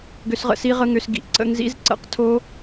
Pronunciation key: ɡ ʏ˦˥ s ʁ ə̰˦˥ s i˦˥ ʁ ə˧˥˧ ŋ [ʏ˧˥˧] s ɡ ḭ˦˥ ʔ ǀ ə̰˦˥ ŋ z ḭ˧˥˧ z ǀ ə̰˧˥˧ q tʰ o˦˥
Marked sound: correct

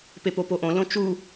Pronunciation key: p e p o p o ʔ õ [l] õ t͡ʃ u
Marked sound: correct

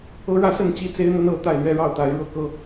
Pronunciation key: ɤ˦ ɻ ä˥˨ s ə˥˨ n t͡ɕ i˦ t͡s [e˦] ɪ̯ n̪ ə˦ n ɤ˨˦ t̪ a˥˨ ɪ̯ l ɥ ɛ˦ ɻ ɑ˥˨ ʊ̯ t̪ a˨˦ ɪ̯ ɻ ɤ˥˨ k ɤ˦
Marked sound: correct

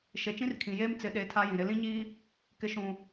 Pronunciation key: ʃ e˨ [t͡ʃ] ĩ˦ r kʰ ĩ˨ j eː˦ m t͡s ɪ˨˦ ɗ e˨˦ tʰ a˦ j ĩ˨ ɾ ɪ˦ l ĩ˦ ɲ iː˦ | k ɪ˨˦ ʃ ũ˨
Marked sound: correct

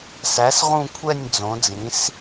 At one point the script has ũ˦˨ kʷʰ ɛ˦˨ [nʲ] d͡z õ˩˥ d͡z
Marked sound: correct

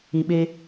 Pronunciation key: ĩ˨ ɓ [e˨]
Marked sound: incorrect: e˦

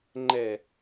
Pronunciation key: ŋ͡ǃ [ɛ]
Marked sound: correct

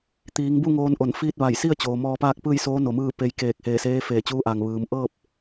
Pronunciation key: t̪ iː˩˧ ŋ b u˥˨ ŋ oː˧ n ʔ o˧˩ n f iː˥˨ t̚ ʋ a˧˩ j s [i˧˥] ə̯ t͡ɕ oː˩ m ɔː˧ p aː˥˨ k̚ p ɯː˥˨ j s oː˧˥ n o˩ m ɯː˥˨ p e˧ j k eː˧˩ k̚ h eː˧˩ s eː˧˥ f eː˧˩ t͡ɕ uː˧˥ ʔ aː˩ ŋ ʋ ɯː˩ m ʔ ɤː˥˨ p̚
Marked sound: incorrect: i˥˨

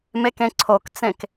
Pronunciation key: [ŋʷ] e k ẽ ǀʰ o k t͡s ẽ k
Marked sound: incorrect: m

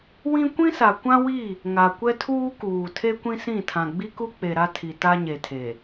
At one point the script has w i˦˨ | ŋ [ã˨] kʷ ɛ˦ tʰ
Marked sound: incorrect: a˨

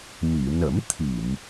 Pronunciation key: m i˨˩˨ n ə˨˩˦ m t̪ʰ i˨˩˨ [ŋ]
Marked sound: incorrect: m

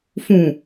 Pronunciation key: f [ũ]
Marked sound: correct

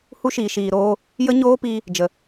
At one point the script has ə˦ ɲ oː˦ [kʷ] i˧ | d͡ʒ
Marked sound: incorrect: p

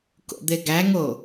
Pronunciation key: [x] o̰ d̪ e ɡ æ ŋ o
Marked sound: incorrect: k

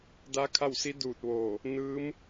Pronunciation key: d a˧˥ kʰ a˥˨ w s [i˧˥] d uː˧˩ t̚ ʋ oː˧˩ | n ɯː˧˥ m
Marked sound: correct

